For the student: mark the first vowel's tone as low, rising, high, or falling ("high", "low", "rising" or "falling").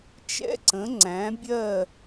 high